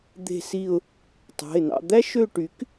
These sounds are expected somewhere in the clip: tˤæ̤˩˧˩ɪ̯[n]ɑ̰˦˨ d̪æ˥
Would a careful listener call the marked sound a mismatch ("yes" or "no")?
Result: no